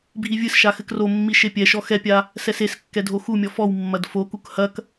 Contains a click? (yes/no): no